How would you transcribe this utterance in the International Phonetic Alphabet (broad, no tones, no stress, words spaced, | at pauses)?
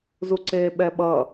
zuǀeːɓɛɓʌ